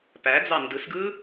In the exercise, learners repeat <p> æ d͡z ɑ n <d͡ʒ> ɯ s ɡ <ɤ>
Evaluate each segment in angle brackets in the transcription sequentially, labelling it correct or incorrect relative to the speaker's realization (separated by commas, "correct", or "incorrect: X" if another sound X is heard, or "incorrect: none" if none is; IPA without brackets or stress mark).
correct, incorrect: d, incorrect: ɯ